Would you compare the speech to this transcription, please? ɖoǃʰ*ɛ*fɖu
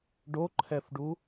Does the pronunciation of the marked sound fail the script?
no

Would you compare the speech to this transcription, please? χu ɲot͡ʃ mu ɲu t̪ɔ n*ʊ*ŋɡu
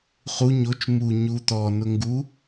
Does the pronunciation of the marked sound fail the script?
no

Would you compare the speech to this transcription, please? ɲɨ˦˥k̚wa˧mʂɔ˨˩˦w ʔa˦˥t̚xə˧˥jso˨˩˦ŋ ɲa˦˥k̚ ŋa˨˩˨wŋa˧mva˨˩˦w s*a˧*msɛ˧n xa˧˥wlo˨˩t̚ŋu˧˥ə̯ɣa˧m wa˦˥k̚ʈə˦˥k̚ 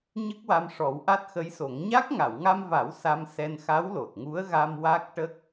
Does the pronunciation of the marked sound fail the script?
no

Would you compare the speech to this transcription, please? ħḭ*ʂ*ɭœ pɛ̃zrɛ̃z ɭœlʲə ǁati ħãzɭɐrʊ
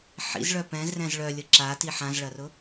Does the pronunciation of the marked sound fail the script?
yes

